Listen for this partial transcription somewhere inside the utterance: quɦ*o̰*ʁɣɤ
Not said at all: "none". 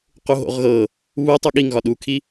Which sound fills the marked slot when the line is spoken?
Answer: o̰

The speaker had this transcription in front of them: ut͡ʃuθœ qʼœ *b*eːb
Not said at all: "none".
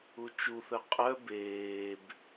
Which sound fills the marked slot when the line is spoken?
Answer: b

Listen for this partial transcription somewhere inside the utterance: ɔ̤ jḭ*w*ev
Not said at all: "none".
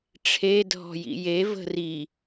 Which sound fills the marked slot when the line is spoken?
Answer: j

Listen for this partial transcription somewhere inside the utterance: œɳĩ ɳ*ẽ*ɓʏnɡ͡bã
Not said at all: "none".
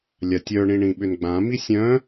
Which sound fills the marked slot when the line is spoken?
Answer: ĩ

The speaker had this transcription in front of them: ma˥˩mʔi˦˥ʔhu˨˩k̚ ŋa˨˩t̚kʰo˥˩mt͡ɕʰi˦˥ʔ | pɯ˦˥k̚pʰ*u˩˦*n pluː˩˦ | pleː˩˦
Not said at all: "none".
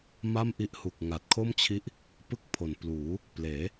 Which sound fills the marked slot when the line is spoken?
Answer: o˩˦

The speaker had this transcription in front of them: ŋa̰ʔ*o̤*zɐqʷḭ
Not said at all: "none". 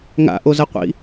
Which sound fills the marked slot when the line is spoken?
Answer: o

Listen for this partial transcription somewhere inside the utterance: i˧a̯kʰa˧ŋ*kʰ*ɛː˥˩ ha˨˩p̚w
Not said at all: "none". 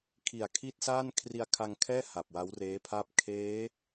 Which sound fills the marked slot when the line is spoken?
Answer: kʰ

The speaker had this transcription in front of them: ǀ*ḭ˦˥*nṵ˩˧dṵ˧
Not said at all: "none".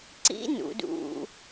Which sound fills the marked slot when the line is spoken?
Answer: ḭ˦˥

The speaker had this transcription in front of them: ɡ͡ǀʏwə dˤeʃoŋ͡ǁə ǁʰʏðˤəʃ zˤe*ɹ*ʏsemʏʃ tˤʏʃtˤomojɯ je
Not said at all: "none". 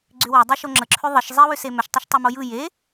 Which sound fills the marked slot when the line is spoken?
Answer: w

